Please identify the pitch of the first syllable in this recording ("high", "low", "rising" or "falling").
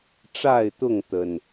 falling